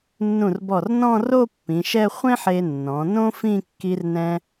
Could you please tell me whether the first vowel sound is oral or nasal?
nasal